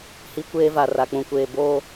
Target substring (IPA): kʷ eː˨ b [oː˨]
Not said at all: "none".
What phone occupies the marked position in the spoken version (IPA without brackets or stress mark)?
oː˦